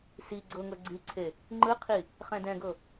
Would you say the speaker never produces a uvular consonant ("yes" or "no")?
no